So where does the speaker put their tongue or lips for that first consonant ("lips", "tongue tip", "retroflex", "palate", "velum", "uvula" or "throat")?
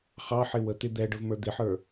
uvula